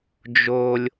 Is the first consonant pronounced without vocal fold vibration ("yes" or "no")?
no